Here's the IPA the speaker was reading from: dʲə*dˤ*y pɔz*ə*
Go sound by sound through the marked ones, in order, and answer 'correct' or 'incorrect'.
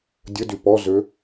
incorrect, incorrect

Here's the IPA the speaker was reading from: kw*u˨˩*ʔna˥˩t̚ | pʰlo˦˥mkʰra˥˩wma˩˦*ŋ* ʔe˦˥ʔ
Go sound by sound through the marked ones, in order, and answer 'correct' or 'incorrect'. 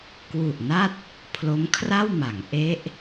correct, correct

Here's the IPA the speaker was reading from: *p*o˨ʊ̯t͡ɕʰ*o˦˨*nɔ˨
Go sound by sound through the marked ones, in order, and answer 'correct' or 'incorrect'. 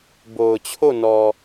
incorrect, correct

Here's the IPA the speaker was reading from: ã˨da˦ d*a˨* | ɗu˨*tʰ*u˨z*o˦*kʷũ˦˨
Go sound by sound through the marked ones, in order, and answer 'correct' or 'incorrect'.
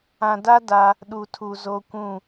incorrect, correct, correct

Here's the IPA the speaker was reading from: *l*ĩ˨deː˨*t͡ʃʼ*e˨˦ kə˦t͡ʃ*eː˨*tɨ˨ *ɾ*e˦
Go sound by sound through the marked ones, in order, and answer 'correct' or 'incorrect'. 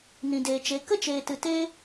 incorrect, incorrect, correct, incorrect

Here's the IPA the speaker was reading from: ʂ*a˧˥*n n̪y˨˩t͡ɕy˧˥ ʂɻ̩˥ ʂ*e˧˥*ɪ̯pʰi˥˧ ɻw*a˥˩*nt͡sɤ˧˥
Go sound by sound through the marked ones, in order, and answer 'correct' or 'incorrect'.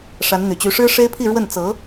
correct, incorrect, incorrect

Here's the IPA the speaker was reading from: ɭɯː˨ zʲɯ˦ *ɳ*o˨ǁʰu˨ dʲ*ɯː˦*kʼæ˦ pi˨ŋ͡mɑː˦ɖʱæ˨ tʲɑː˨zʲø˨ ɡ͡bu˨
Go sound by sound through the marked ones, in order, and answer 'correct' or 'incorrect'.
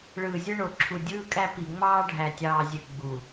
correct, correct

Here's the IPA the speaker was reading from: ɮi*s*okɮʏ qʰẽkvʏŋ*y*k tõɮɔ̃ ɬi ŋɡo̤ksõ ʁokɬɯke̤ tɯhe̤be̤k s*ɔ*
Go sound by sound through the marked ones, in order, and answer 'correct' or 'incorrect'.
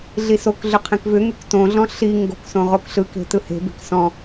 correct, correct, incorrect

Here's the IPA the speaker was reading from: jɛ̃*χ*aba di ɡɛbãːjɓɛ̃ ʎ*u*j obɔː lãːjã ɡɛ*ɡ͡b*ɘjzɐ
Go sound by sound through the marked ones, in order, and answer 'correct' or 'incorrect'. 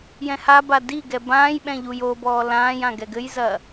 incorrect, correct, incorrect

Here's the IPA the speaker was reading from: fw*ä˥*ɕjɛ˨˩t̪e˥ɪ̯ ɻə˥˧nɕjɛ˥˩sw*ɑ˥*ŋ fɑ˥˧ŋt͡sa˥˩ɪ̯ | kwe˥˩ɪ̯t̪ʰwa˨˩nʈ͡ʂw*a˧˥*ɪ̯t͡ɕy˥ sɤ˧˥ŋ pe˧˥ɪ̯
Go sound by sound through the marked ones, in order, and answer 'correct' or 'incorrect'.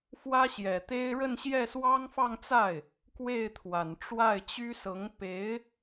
correct, correct, incorrect

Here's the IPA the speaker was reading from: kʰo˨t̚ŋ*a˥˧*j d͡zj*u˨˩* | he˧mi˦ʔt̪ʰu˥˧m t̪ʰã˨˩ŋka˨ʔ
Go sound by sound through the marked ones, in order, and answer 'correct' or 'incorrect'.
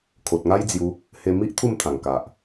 incorrect, incorrect

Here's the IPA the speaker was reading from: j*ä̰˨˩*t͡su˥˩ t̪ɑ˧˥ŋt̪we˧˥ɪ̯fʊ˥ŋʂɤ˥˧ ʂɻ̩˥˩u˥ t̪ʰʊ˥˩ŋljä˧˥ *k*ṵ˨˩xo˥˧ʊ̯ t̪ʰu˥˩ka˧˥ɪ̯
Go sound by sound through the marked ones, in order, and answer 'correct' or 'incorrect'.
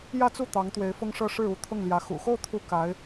incorrect, incorrect

